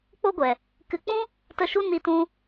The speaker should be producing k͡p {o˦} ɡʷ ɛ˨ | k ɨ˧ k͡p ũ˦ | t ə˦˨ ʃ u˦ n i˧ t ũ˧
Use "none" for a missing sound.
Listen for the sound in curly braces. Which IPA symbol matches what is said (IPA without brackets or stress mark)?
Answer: o˦